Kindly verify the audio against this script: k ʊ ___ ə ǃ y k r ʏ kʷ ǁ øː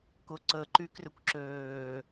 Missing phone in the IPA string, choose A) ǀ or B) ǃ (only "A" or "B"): A